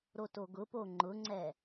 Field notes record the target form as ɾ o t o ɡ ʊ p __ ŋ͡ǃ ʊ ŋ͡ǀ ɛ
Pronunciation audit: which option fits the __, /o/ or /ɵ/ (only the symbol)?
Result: o